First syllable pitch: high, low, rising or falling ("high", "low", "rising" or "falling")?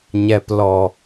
low